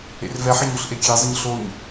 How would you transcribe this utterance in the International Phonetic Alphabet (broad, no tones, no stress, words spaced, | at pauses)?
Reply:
ḛrvɛħə ɲoɬʔekʲezˤəɲ ɬoɲ